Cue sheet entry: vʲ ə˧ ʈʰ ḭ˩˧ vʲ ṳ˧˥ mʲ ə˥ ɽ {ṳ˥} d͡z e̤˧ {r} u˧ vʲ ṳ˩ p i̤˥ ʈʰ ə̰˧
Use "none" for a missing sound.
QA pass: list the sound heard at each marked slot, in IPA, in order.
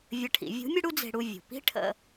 u˥, ɽ

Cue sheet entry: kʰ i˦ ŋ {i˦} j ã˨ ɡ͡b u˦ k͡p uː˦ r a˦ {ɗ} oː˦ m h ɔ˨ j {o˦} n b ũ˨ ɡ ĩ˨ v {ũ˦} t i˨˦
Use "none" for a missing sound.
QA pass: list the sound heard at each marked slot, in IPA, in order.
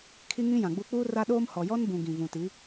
ĩ˦, ɗ, ɔ˦, ũ˨

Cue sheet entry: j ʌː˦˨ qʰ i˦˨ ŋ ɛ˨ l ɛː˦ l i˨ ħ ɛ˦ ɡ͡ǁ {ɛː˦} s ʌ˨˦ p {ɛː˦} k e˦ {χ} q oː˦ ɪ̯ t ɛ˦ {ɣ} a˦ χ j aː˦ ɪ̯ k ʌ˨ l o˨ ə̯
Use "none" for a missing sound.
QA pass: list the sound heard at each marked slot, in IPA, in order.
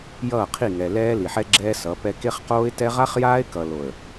ɛː˦, ɛ˦, χ, ʁ

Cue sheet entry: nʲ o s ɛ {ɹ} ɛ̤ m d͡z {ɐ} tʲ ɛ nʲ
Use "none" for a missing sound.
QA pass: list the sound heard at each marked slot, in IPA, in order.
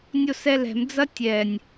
l, ɐ

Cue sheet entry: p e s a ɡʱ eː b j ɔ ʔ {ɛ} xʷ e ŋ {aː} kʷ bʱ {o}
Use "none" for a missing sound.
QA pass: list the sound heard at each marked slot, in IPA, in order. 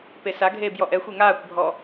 ɛ, aː, ɔ

